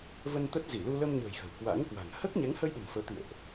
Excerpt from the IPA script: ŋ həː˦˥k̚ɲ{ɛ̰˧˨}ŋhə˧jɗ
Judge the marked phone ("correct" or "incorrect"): incorrect